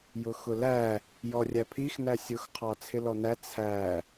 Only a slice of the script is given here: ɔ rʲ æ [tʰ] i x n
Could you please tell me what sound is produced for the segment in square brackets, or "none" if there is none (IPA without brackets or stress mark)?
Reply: pʰ